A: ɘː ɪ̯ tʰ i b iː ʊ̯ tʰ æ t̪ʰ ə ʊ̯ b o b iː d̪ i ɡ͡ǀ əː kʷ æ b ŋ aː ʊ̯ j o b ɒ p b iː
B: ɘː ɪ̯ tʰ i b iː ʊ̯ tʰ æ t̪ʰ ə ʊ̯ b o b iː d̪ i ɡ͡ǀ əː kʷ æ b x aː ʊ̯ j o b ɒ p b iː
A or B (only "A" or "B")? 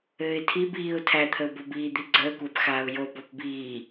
B